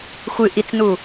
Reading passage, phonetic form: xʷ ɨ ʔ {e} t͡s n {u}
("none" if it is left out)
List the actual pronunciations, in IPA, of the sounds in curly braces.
i, u

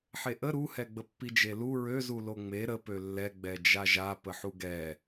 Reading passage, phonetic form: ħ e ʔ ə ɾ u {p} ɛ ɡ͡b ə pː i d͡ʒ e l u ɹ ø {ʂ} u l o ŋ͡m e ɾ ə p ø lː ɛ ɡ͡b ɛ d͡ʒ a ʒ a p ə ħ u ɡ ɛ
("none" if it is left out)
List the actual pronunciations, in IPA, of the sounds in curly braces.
h, z

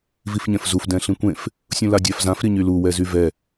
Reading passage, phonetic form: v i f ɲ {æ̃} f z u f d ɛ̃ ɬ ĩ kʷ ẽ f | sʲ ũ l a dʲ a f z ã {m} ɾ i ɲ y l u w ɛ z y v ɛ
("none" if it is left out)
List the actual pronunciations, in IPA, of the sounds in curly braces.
ɛ̃, f

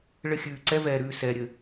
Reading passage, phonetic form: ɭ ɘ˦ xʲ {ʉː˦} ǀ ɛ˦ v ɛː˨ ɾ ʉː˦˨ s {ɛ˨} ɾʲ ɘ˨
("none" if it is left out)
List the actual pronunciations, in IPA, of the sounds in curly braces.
ʉː˨, ɛː˨

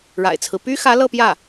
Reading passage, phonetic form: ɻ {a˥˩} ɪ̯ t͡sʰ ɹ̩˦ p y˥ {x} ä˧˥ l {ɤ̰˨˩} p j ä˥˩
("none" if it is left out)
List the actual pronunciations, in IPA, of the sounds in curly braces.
a̰˨˩, x, ɤ˥˧

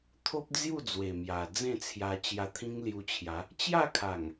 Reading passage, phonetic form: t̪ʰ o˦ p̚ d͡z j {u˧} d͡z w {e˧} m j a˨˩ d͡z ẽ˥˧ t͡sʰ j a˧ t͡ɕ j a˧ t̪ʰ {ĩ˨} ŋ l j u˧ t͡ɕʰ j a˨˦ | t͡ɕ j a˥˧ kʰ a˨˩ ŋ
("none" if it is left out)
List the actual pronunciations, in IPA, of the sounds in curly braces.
u˥˧, e˨˩, ĩ˦

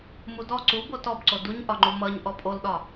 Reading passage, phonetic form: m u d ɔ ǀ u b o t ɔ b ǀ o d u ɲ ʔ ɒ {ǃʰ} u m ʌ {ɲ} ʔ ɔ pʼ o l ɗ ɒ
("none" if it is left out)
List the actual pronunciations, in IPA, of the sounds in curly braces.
ŋ͡ǃ, ɲ

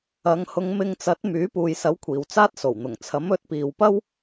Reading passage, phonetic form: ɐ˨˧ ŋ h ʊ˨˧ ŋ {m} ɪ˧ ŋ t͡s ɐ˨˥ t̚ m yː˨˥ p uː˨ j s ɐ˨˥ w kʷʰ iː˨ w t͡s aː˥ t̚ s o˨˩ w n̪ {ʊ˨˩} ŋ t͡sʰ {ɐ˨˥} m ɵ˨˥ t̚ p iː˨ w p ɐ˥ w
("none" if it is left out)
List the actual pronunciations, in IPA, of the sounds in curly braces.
m, ʊ˨˩, ɐ˨˥

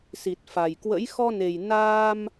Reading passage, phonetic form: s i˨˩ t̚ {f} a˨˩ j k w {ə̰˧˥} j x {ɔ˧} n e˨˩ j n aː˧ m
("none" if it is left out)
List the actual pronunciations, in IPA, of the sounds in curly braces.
f, ə̰˧˥, ɔ˧

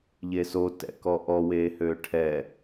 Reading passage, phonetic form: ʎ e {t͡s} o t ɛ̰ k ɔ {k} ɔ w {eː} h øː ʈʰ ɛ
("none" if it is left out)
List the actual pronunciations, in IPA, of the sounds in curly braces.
s, ʔ, eː

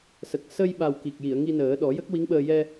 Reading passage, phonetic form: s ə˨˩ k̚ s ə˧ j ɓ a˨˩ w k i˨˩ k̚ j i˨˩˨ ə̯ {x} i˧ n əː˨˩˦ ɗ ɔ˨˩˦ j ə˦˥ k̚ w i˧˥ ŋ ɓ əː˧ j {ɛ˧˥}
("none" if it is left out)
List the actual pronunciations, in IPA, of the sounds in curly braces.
ŋ, ɛ˧

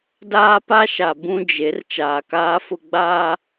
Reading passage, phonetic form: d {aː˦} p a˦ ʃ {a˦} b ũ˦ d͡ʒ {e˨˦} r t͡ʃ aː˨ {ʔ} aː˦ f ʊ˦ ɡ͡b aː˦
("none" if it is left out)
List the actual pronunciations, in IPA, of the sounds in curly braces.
aː˦, a˨, e˨˦, k

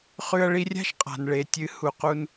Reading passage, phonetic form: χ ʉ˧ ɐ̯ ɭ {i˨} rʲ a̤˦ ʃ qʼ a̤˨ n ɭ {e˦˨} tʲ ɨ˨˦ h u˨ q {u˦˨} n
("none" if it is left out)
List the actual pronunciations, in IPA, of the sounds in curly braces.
i˧, e˨, u˧

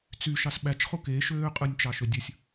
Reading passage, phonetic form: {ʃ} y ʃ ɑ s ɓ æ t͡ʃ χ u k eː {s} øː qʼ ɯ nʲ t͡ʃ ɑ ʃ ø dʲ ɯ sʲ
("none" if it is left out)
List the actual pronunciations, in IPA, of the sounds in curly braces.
t͡s, ʃ

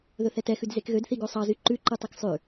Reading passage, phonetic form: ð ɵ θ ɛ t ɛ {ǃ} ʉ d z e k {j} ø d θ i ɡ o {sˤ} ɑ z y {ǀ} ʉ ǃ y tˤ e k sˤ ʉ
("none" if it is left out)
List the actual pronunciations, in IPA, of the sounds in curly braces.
x, ɣ, sˤ, ǃ

